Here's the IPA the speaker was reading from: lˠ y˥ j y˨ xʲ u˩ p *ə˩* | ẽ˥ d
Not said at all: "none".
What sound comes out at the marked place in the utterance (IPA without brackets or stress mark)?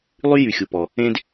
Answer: ɔ˩